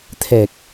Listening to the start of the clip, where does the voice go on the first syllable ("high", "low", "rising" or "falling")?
low